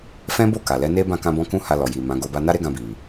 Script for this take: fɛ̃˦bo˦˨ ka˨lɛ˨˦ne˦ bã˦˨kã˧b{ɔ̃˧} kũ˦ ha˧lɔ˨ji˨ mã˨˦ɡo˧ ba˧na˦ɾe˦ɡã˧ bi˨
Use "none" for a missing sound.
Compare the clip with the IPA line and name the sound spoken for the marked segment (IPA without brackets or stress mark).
ɔ̃˧